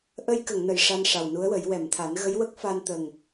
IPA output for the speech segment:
ʔ ə˧ j k ə˨˩˨ ŋ n ə˨˩˨ j ʂ a˧ n ʂ a˨˩ w n u˧˥ ə̯ w ə˨˩˦ j w ɛ˨˩˨ m t̪ʰ a˨˩˦ n ɣ ə˧˥ j w ə˦˥ k̚ f a˧ n t̪ ə˨˩ ŋ

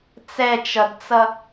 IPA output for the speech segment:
t͡s ɛ t͡ʃ ʌ d t͡s ʌ

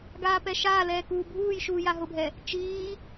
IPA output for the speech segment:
ɡ aː p ɛ ʃ aː l ɛː k uː bʱ uː j ʃ uː j a ɦ ʊ bʱ ɛ | t͡ʃ iː

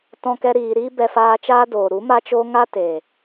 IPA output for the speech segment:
t ɔ̃˧ k ɛ˧ ɾ iː˨ ɾ iː˦ b ɛ˧ f aː˧ t͡ʃ aː˦ d oː˨ ɾ u˨˦ m a˦ t͡ʃ o˦ ŋ a˦ t e˨

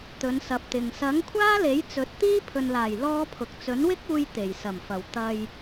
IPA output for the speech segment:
t̪ ɵ˨˧ n s ɐ˨ p̚ t̪ ɪ˨ ŋ s ɐ˨˥ ŋ kʷʰ aː˥ l e˨˥ j t͡s ɵ˨˥ t̚ t̪ iː˥ pʰ ɵ˨ n l aː˨˩ j l ɔː˥ pʰ ʊ˨˥ k̚ t͡s ɵ˨˥ n w ɪ˥ k̚ uː˧ j t̪ e˨˩ j s ɐ˨˩ m f ɐ˨˩ w t̪ ɐ˧ j

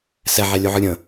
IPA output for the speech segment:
s ɛ ʕ ɛ lʲ o ʕ ɯ ɾʲ ə̃

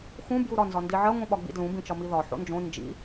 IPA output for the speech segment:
x ũ b j u ɾ ɒ n z ɒ n d i ʕ ɜ ŋʷ ĩ ɓ ɒ ɡ͡b ḭ d l ũ b ĩ t͡ʃ ɒ m i ð ɒ ħ o̰ n d͡ʒ õ n d͡ʒ ḭ

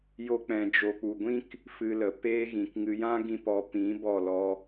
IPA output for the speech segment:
j o˦ k͡p ɛ̃˧ d͡ʒ o˨ k͡p u˨ ɡʷ ĩ˦ k | f ɨ˧ l ə˨ p eː˦ ɣ ĩ˨ k ŋ ɨ˧ j ã˦ ɡ ĩ˧ p ɔ˨ p ĩ˨˦ b ɔ˦˨ l ɔ˧

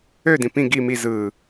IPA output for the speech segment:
ø d ĩ p ĩ ɡ i m i z ɯ

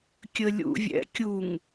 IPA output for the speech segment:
kʲ ə lʲ ṵ vʲ ɛ̰ kʲ u ŋ

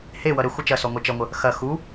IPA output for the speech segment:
h e w ʌ ɾ ə xʷ ʌ t͡ʃ ɐ s ɔ ŋʷ ɜ t͡ʃ ʌ ŋʷ ə | x ɐ x u

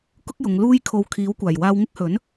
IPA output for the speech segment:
k ʊ˥ k̚ j ʊ˨˧ ŋ l uː˥ j kʰ o˧ w kʰ iː˨˥ w kʷ aː˨˩ j w aː˧ w ŋ ɪ˥ k̚ h ɵ˨˥ n

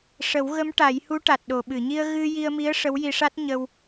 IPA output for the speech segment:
ʂ ə˨˩˦ w ɣ ə˧˥ m ʈ a˨˩˦ j h u˧˥ ʈ a˨˩ t̚ ɗ o˨˩˨ ɓ ɨ˨˩˨ ɲ i˧ ə̯ ɣ ɨ˧ j i˧ ə̯ m i˧˥ ə̯ ʂ ə˧˥ w j i˧ ʂ a˦˥ t̚ ɲ ə˧ w

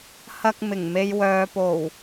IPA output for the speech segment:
h ɐ˧ k̚ m ɪ˨˩ ŋ m e˨ j w œː˨ p o˨˩ w

